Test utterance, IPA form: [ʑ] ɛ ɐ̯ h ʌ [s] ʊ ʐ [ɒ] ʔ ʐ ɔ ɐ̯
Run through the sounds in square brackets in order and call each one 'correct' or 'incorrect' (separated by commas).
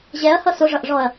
correct, correct, incorrect